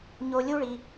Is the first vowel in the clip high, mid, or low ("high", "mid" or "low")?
mid